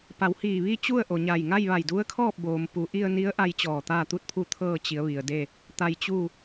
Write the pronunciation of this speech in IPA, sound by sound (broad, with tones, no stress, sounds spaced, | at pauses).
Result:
p a˩˧ w h iː˧˩ ʋ iː˥˨ t͡ɕ u˥˨ ə̯ ʔ o˩ ɲ aː˧˩ j ŋ a˥˨ j ʋ a˧˩ j d u˧˥ ə̯ kʰ ɔː˥˨ p̚ b oː˩ m p u˩˧ ʔ i˧ ə̯ n i˧˥ ə̯ ʔ a˧ j t͡ɕ ɔː˧˩ t̪ aː˥˨ t̪ u˥˨ t̚ pʰ u˥˨ t̪ʰ ɤː˥˨ t͡ɕ i˩˧ ə̯ ʋ i˩ ə̯ d e˥˨ | t̪ a˧ j t͡ɕ u˥˨